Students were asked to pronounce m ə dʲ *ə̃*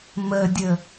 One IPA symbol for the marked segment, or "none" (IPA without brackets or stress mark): ə